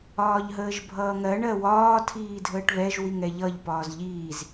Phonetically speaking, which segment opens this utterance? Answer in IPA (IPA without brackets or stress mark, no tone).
ɒː